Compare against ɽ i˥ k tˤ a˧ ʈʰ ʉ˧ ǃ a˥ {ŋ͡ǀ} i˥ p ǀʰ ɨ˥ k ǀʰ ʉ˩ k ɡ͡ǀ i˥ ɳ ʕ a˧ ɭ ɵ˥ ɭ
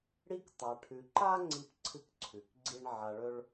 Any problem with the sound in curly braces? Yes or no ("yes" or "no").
no